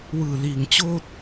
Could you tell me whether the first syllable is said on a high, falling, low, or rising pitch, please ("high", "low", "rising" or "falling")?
low